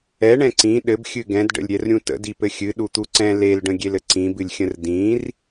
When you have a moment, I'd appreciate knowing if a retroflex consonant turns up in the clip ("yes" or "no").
yes